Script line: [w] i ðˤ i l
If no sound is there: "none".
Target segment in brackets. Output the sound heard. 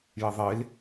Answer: j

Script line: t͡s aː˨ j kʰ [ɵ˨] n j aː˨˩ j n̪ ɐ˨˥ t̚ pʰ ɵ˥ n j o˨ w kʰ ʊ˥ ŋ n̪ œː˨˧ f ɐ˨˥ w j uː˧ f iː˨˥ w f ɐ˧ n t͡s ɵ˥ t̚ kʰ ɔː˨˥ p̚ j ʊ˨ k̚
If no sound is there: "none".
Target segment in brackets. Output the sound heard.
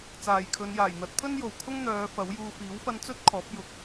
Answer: ɵ˨˧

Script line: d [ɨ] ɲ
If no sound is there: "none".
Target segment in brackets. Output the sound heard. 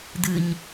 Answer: ɨ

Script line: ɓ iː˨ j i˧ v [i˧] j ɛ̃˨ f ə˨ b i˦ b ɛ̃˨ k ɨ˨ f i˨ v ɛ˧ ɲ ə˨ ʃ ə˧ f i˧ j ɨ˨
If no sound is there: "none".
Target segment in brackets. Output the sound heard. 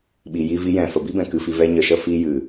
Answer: i˧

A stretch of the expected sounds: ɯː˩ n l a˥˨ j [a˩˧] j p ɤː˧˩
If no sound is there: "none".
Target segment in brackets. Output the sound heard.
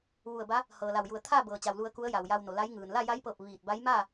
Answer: a˧˥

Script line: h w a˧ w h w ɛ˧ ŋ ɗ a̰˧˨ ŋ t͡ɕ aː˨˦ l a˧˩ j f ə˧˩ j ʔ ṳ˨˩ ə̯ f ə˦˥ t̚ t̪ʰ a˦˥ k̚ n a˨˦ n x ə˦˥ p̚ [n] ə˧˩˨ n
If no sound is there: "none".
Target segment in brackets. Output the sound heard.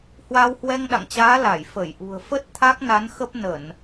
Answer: n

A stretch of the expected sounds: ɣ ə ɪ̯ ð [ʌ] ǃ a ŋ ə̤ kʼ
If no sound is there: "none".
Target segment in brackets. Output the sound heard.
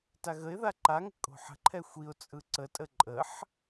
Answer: a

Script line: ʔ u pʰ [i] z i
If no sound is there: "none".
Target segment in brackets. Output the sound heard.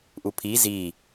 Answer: i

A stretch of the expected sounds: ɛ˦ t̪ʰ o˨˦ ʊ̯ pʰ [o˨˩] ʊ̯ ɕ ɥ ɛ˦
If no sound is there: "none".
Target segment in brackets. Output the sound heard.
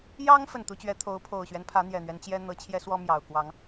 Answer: o˨˩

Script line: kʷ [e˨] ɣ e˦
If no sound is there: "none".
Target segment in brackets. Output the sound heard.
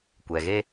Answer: ɛ˨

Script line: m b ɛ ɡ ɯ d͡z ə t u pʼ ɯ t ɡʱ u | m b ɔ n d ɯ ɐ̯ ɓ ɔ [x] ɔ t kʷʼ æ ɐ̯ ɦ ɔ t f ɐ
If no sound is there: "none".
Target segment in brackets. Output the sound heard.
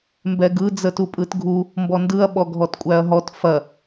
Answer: ɡʱ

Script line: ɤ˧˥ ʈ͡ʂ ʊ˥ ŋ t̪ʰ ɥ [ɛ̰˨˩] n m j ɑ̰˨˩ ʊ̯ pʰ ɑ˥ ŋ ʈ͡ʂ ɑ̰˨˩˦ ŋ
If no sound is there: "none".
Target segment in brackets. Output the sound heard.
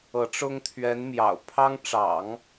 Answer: ɛ˧˥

